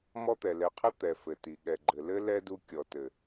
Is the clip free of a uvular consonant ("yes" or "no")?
no